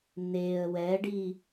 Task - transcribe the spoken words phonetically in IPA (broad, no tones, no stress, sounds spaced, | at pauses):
n e ə̯ w ɛ ɖ i